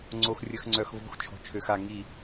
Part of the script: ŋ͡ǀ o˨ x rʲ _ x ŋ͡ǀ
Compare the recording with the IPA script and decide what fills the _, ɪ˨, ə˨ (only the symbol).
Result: ə˨